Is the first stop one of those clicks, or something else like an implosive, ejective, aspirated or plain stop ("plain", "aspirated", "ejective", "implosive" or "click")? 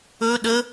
implosive